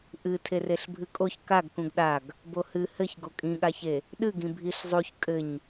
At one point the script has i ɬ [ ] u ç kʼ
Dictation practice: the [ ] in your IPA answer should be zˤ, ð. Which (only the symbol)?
zˤ